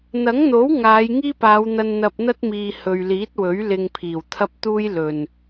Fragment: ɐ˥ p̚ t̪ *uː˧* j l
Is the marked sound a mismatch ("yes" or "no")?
yes